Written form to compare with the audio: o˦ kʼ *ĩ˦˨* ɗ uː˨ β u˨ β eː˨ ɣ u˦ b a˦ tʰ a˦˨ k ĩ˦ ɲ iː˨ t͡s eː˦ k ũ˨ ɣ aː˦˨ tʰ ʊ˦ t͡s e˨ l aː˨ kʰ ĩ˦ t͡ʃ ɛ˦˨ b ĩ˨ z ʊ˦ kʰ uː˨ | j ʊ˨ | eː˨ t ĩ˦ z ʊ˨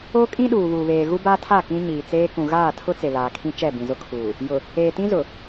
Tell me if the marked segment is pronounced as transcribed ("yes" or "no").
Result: no